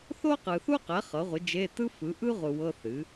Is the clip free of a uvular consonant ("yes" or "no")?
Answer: no